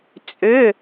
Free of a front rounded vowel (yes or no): no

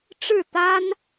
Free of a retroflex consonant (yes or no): no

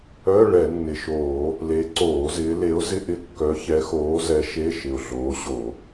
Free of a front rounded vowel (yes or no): no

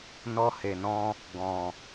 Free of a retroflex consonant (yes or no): yes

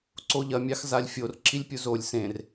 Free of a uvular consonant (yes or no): yes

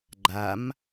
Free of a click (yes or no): no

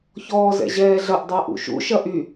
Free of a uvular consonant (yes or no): yes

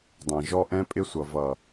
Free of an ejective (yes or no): no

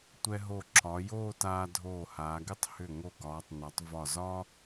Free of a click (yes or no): no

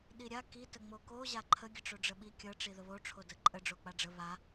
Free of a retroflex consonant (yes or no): no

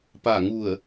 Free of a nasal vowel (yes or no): yes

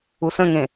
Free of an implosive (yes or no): yes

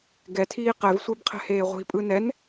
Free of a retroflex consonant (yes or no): yes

